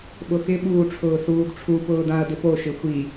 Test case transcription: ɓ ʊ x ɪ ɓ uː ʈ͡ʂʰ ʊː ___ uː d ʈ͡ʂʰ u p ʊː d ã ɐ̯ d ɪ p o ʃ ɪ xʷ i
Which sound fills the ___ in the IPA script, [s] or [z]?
s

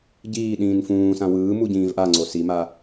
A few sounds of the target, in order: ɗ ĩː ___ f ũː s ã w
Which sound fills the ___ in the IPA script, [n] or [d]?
n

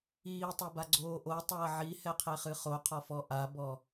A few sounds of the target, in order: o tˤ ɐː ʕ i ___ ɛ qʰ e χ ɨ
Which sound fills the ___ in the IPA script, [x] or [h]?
h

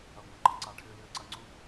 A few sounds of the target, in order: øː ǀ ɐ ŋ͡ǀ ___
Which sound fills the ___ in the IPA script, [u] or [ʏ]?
u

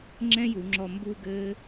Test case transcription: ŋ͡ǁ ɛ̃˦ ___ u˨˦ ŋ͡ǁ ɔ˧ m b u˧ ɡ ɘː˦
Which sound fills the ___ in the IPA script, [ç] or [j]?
j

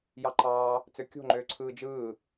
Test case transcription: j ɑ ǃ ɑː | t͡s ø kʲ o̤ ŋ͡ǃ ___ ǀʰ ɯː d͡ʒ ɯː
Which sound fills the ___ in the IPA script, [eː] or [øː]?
øː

